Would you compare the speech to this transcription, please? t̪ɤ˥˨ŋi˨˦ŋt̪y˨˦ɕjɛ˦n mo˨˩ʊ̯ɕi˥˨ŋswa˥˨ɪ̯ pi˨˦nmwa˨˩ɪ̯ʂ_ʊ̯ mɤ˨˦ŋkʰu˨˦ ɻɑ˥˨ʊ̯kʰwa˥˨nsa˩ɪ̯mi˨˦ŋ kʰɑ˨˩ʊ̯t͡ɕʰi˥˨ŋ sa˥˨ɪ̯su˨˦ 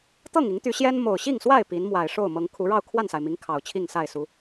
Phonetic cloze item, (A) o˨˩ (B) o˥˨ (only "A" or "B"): B